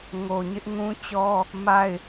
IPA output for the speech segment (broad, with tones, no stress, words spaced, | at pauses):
ŋo˨ɲɪ˦ʔŋũ˦t͡ɕɔ˦ | ma˦˨ɪ̯